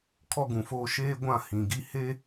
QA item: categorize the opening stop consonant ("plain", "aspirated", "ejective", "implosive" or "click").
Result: aspirated